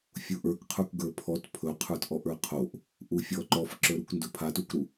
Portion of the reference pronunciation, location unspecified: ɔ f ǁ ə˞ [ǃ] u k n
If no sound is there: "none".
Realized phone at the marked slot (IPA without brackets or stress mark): ɾ